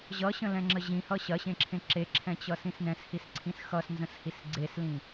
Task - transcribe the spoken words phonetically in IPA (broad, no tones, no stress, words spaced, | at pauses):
ʑʌɕə̃lɛ̃ŋ͡ǁə ʑĩhʌ ɕɐɕẽǁʰẽ ǁeǁʰɛ̃t͡ɕʌsĩs nɛ̃shisǀʰĩs xʌsnzə̃shis ɡ͡ǀeslĩ